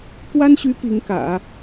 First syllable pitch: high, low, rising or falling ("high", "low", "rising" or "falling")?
high